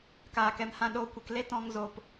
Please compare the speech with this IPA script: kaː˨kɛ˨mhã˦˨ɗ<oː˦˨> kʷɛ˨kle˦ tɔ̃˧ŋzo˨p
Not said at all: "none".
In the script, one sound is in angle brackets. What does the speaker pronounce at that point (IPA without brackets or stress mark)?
oː˦˨